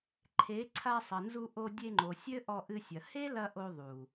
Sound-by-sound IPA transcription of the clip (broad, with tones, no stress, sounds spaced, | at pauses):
ǃʰ e˨˦ ǀʰ a˧ sˤ ɐ˨ n z u˧ ʔ o˧ dʲ e˧ ŋ͡ǃ o˨ sʲ ɘ˦ ʔ ɔ˧ ʔ ɨ˧ sʲ ɐ˨ h e˦ l ɐ˧ ʔ o˧ ðˤ u˨